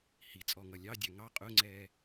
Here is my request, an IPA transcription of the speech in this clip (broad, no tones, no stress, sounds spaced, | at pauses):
h i t͡sʼ ɔ ŋ ʌ lʲ ɑ dʲ ɑ ŋ ɑ qʼ ʊ ŋ͡ǀ ɛː